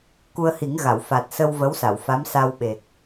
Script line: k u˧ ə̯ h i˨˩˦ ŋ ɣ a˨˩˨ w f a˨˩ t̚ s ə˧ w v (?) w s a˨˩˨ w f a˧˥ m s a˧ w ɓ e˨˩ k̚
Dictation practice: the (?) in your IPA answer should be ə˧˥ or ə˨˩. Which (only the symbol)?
ə˧˥